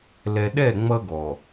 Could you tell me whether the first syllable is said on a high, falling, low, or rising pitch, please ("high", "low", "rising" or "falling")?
low